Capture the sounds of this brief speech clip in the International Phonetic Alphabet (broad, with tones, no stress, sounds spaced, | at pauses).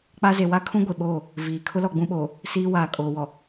k͡p a˦ z e˨ w a˦ kʰ ũ˦ ɡʷ e˨ ɓ oː˦˨ | v iː˨ kʰ ʊ˦ l ɔ˨ ɡ͡b ũ˦ ɓ oː˨ | s iː˦ w aː˨ kʼ oː˨ w ɔ˨